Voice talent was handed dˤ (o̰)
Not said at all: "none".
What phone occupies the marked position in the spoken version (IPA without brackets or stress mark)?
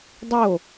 o